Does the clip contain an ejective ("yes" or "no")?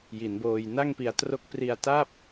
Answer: no